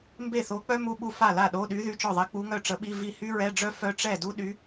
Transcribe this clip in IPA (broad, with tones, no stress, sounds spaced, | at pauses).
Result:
m b e˥˩ θ o˧˥ k͡p œ˥ m u˧˥˧ ɓ u˥˩ f a˥˩ l a˥˩ ɗ o˧˥˧ ɗ y˧˥ ð y˧˥˧ t͡ʃ ɔ˥˩ ðˤ ɛ˧˥ k͡p u˧˥ ŋ œ˥˩ ʈ͡ʂ ə˧˥ ɓ i˧˥˧ v i˥˩ h y˥ ɹ ɛ˧˥˧ ɖ͡ʐ œ˥ f œ˥ ʈ͡ʂ ɛ˥˩ d u˥ ɗ y˧˥